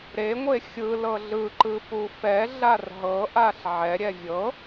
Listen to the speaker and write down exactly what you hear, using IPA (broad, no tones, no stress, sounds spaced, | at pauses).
ɾ e ŋʷ e xʲ ɯ l ɤ ɮ ɯ ǃ ɯ p u f ɛ ɮ a r ɦ ɤ ʔ a ɬ ʕ ɛ ɾʲ ɛ vʲ ɤ